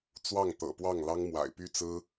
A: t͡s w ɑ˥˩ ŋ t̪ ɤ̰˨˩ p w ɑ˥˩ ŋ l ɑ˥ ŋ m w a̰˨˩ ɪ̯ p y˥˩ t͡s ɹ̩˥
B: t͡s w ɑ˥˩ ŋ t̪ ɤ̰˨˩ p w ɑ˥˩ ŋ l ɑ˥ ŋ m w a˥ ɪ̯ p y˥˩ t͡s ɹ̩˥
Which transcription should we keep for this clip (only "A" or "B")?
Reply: A